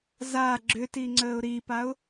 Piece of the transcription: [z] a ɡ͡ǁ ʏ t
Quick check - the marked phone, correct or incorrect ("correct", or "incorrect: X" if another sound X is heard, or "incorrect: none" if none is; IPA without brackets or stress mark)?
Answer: correct